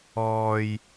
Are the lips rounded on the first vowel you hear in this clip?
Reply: yes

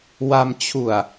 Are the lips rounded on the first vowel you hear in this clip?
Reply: no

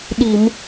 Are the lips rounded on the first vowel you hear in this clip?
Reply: no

